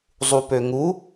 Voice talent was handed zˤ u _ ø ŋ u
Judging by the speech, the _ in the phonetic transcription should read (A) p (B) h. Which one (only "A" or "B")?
A